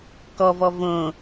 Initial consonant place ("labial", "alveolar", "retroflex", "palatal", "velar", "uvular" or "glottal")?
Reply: velar